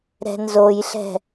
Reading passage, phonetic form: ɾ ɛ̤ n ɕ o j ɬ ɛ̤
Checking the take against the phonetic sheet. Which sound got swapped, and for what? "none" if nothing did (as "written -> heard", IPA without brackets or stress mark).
ɕ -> z